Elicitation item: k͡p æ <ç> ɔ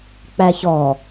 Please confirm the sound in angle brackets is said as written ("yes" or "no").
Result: yes